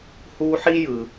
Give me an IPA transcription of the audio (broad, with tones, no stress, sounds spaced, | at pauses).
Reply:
h u˦ ħ i˥ j ɯ˩